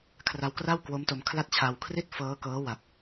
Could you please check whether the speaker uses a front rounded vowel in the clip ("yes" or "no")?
no